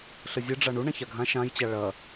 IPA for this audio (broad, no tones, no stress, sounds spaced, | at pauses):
ɬ ə zʲ ɨ ɖ͡ʐ a ɳ u ɳ ã ç a ɡʱ ã ʃ ã j t͡ɕ a ɭ ɐ